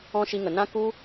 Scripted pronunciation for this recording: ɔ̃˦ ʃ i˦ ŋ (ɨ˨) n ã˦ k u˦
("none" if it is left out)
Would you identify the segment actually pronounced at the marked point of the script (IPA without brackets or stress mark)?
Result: ə˨